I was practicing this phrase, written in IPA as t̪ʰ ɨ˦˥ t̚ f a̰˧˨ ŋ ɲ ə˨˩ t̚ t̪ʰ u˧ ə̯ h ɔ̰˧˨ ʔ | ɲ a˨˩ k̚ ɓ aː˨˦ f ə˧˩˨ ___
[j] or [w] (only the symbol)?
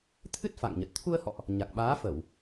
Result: w